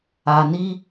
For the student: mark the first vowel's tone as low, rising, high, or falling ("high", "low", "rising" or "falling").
low